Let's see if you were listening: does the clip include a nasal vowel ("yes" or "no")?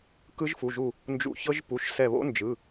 no